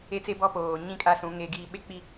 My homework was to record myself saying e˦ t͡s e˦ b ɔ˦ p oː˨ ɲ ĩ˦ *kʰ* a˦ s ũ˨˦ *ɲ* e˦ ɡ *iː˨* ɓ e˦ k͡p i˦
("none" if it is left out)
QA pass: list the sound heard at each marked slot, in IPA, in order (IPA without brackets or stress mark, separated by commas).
kʼ, ŋ, iː˦